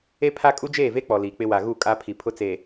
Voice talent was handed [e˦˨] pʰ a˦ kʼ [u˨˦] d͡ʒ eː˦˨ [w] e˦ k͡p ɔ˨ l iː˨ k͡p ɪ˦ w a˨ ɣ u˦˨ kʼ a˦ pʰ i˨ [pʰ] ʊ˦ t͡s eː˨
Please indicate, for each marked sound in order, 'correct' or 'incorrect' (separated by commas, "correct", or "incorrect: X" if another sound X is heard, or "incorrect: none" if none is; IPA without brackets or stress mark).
incorrect: e˦, incorrect: u˦, incorrect: v, correct